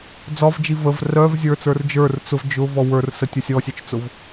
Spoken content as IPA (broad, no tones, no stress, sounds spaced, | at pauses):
d͡z ɒ v d͡ʒ i v ə v r œ v zʲ ə˞ t͡s ə˞ r d͡ʒ ə˞ r t͡s ʊ v d͡ʒ ʊ v ɔ w ə˞ r s ə tʲ ə sʲ ɔ sʲ œ t͡ʃ t͡s ʊ v